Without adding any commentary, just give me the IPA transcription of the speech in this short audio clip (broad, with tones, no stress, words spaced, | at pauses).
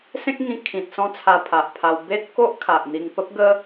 sẽ˦k̚ŋĩ˧ kʰĩ˨t̚ sɔ̃˥˧t͡sʰa˧ pʰa˨ʔpʰa˧w be˦t̚ko˦ʔkʰa˨ʔn̪i˧ŋ pə˦p̚ɡə˦